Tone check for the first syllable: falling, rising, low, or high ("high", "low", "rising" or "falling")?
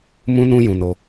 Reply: high